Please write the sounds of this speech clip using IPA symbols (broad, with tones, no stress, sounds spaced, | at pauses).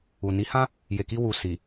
u˨ n i˨˦ h ã˦ | j e˨ k i˧ w u˨ s i˨